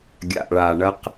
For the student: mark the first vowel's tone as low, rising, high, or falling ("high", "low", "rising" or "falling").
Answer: low